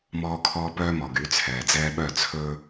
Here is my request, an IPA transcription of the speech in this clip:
m ɔː˦ kʰ ɔː˦ p œː˦ m ɔ˨ ɡ y˨˦ t͡sʰ ɛː˨ d͡z ɛː˦ ɓ œ˦˨ t͡sʰ ɵ˦

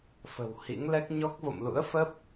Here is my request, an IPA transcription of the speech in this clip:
f ə̤˨˩ w h ḭ˧˥ ŋ l ɛ˦˥ k̚ ɲ ɔ˦˥ k̚ v o̰˧˨ m l ṵ˧˥ ə̯ f ə˦˥ p̚

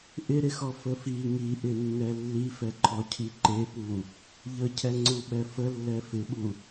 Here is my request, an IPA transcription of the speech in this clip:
ʔ ɪ ɾ ɪ x ɔ f ə f i ŋ i ʔ ɪ nː ɛ lː i f ɛ ǃʰ ɔ cʰ i ǃ e p u | ʎ ə cʰ ɛ ŋ͡ǀ u ɓ ɛ f ə lː ɛ f ɪ ɓ u

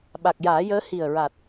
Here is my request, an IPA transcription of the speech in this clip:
ɓ a˨˩ k̚ j aː˨˩˦ j əː˧˥ h i˨˩ ə̯ ɹ a˨˩ t̚

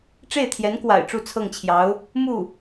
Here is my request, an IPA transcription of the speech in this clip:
ʈ͡ʂ e˥˩ ɪ̯ t̪ʰ j ɛ˧˥ n k w a̰˨˩ ɪ̯ ʈ͡ʂ u˥˧ t͡sʰ ɤ˥˩ ŋ t͡ɕʰ j ɑ˧˥ ʊ̯ | m u˥˩

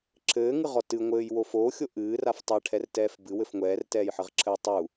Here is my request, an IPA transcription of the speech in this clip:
ǁʰ ɘː ŋ ɨ ʁ ɔ t ɨ ŋʷ ɘː j w o f oː xʲ o ʔ ɨː r a f tˤ a ʈʰ ɛ r t ɛː f b ɨ w ɘ f ŋʷ ɛː r t ɛː j ħ ɘ ʁ ǁʰ ɘː tˤ u

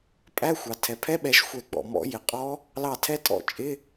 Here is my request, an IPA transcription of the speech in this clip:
pʼ æ˧˥˧ xʷ ɑ˩ tʰ ɛ˩ pʰ ɛ˧˥˧ ɓ ɛ˨˩˦ ʃ xʷ ɛ˨˩˦ ɡ͡b ɔ̰˩ m ɔ̰˨˩˦ j ɪ˩ qʼ ɔ˧˥ | l ɑ˧˩ tʰ ɛ˧˥ tʼ ɔ̰˧˩ t͡ʃʼ ɪ˧˥˧

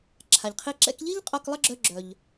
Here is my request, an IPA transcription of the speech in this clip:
ǁʰ a˩ ʎ qʰ i˧ ǁ ɛ̰˧ k ʎ i˥ ʎ qʼ ɔ˧ k lˠ ə˥ ɡ͡ǁ œ˧ ɡ͡ǁ œ˩ ʎ

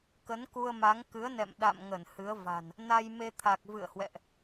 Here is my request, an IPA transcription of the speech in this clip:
k ə˨˦ n k u˧ ə̯ m a˨˦ ŋ k ɨ˨˦ ə̯ n ɛ̰˧˨ m ɗ a̰˧˨ m ŋ ə˧˩ n h ɨ˨˦ ə̯ v a̤˨˩ n | n a˧ j m e˧ t̪ʰ a˨˩ k̚ v ɨ̰˧˨ ə̯ h w ɛ̰˧˨ ʔ

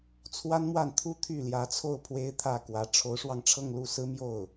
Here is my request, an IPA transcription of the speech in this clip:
t͡sʰ w a˥ n m w a˥˩ n t̪ʰ u˥ t̪ʰ y˥˩ l j ä˧˥ t͡sʰ o˥˩ ʊ̯ pʰ w e˥ ɪ̯ t̪ʰ ä˥˩ k w ä˧˥ ʈ͡ʂʰ o˧˥ ʊ̯ ʂ w ɑ˧ ŋ ʈ͡ʂʰ ɤ˥˧ ŋ l u˥˩ s ɹ̩˥ m j o˥˩ ʊ̯

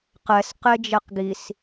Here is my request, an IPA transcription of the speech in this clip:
q ɛ s q e d͡ʒ ɛ q ɡ i s

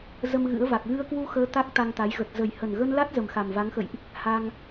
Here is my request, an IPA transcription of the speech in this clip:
z ə˧ m ɣ ɨ̰˧˥ ə̯ v a˨˩ k̚ ɣ ɨ˧ ə̯ k w u˧ x əː˨˦ t̪ a˦˥ k̚ t̪ a˧ ŋ t̪ a˨˦ j ɣ ə˨˩ t̚ z ə˨˩ j h ə˨˩ n ɣ ə˧ n l a˦˥ t̚ z ə˨˩ m x a˨˩ m v a˨˦ ŋ x ə̰˧˨ j ʔ | h a˧ ŋ

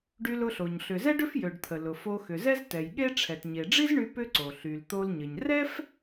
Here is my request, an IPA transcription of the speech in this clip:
ɖ y˧ l ʊ˧ ɬ o˩ ɲ ɬ ʏ˩ z ɛ˥ ɖ ʏ˥ f j ø˩ ɖ t̪ʰ ə˩ l ʊ˩ f o˧ x ʏ˩ z ɛ˥ z t ɛ˩ j ɠ e˥ ʈ͡ʂʰ ɛ˩ t ɲ e˩ ɖ͡ʐ i˥ z ɳ y˧ p ʏ˥ ǀ o˩ ɬ y˩ l t̪ o˧ l ɲ ə˩ ɲ r ɛ˥ f

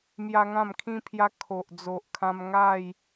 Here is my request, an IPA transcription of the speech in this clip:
m j a˦ ŋ ã˥˧ m kʰ ĩ˦ pʰ j a˦ kʰ o˨ ʔ d͡z o˨ ʔ kʰ ã˧ m ŋ a˥˧ j

